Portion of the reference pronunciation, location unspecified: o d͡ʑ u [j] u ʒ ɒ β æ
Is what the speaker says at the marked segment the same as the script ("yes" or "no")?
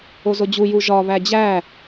yes